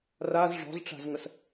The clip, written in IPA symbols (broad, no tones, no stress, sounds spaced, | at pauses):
r a z ʐ ɔ̤ z ʈ͡ʂ a̤ z ŋ ə s